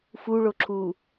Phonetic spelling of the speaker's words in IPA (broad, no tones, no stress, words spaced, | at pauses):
fuɭoǁʰuː